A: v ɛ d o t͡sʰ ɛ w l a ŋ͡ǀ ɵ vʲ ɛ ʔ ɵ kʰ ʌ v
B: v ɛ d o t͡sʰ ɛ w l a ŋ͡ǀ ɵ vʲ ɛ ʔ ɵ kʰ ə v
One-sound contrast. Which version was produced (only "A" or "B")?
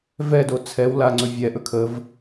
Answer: B